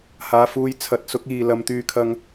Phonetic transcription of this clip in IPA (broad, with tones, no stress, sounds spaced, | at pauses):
h aː˨ f uː˨˧ j t͡sʰ ɐ˨˥ t̚ s ʊ˨˥ k̚ iː˨ l ɐ˨˧ m t̪ yː˧ kʰ ɐ˧ ŋ